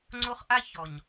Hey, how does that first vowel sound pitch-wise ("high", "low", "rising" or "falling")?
high